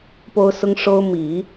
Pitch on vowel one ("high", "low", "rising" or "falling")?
high